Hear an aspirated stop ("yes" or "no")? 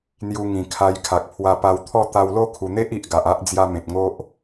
yes